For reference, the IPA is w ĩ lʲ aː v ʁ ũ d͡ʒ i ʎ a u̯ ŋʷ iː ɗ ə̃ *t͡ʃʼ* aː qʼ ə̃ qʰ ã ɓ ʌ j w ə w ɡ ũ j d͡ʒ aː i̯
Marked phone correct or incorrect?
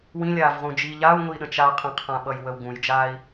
incorrect